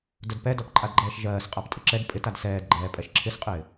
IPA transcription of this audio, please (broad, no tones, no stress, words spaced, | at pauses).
dœdpɛdɔp ǃʼadɡ͡ǃɛːʃʒɜːs qʼaptʼɪǁɛd pʼɪ tadsɛːd ɡ͡ǃɛːpʼɛʃǁʰɪsqʼɪː